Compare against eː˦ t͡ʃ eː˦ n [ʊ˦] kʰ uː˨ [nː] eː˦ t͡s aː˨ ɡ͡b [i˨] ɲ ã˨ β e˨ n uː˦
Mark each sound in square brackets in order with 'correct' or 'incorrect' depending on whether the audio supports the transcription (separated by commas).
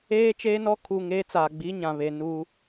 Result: incorrect, incorrect, incorrect